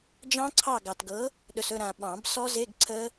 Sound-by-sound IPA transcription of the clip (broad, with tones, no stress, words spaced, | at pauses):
d͡ʒɑ̃˦˥ǀʰɑ˦˨ ɡɑ˨tɡɤ˨˥ | ɗɵ˨sɵ˦˨ ɾã˨ɓɑ̃˨˩˦b sɔ˦˥ze˧˥˧ɡǀʰə˦˥